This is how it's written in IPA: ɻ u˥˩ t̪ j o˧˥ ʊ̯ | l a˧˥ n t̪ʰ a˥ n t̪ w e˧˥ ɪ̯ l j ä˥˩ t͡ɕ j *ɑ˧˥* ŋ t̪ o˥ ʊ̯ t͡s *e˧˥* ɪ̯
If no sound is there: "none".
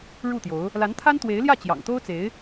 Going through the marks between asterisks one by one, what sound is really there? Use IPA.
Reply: ɑ̰˨˩, e˧˥

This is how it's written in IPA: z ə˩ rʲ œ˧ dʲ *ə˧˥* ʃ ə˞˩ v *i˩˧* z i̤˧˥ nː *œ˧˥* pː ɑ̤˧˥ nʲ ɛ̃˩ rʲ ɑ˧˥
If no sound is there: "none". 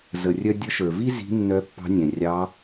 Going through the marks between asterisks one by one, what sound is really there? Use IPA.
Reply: ə˧˥, i˥, œ˧˥

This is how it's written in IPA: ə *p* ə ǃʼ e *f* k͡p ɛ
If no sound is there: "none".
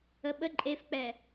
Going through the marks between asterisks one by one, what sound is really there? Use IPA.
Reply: ɓ, f

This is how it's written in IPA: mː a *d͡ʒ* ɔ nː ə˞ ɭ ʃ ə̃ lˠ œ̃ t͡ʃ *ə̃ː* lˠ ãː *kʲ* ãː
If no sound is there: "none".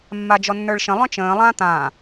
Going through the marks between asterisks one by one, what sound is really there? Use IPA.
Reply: d͡ʒ, ə̃ː, t̪

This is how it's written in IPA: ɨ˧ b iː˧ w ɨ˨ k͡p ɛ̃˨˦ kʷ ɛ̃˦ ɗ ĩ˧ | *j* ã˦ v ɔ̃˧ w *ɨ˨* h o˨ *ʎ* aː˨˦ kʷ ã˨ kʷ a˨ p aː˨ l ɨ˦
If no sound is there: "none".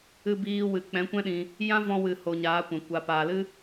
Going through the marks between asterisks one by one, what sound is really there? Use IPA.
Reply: j, ɨ˨, ɲ

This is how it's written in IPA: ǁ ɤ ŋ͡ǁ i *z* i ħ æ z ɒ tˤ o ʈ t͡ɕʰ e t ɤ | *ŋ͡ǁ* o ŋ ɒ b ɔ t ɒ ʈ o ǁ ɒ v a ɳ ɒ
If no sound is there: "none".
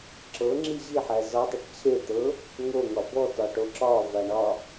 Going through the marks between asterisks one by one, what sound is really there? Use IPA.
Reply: ʑ, ŋ

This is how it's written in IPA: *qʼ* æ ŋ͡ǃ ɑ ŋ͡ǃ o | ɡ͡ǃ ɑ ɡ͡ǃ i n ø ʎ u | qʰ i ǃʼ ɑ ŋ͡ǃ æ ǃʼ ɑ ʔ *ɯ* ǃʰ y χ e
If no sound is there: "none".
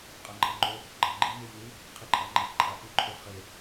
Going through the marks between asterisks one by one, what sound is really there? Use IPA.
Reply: qʼ, ɯ

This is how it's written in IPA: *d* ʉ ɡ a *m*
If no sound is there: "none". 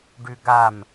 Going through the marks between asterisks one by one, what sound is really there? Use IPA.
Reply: ɖ, m

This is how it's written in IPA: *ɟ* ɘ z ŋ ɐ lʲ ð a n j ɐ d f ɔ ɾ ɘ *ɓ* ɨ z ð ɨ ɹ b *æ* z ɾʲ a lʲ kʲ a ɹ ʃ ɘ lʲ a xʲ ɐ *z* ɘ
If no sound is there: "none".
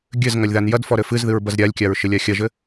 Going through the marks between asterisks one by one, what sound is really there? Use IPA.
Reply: ɡʲ, f, ɐ, ʒ

